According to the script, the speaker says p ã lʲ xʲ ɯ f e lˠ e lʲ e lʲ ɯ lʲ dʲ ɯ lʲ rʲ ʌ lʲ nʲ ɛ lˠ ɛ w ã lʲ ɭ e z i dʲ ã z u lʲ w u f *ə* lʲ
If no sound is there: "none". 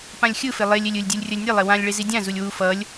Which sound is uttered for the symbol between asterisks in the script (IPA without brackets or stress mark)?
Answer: ʌ